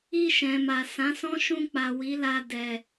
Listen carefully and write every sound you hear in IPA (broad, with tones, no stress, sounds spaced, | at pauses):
i˧ ʃ ɛ̃˨ m a˨ s ã˨˦ s ɔ̃˦ ʃ ũ˧ k͡p a˨ w i˨˦ l a˧ d ɛ˨